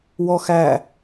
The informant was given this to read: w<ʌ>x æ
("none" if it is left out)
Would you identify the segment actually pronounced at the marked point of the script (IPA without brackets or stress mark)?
ɔ